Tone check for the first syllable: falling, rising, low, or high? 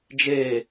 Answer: falling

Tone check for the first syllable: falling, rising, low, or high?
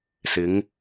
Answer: rising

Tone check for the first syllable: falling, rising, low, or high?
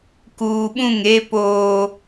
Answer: low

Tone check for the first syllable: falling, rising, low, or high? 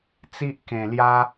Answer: high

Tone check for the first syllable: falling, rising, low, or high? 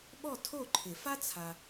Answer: falling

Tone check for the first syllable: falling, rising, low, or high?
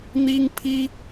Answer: high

